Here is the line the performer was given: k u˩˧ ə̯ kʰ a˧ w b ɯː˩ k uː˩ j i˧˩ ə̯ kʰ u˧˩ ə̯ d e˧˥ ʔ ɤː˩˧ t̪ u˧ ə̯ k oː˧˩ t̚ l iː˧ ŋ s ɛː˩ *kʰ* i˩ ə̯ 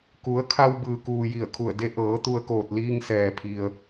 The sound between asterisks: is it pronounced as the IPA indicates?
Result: no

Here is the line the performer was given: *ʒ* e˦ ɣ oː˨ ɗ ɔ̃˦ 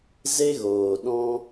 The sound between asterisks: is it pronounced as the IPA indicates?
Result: no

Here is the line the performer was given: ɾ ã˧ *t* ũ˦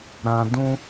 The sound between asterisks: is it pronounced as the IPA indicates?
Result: no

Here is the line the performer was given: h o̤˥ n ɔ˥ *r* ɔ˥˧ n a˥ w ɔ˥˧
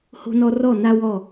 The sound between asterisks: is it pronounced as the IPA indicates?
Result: yes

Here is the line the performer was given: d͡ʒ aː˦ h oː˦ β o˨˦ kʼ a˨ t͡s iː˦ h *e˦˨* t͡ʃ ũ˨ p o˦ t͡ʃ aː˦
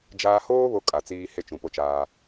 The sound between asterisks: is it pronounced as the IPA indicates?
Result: no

